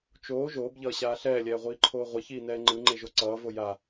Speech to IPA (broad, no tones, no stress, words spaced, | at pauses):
t͡ʃoː ʒoːbʎʌːɕaː ɬɛːlʲɛːʁʷiːǃʰoː ʁʷʌçiːnɛː ŋ͡ǃɯŋ͡ǃeʒo ǀʌːvo ja